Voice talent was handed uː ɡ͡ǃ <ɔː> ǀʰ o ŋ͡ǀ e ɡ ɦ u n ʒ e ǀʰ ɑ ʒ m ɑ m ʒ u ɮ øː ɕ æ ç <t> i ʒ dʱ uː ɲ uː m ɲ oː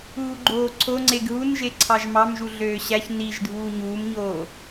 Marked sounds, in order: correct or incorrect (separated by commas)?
incorrect, incorrect